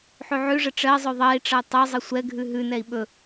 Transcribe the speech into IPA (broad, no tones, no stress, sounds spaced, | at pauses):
ħ ʉ ʕ ʉ ʐ ə ʈ͡ʂ ɜ zˤ ɵ ðˤ ɜ i̯ ʈ͡ʂ ʌ u̯ tˤ ɵ zˤ ə sʷ ɛ ɡʱ ʉ ɦ ʉ n ɛ i̯ ɓ ɵ